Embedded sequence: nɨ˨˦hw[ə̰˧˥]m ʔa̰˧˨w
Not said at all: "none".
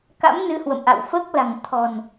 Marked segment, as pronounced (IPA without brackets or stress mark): ə̰˧˨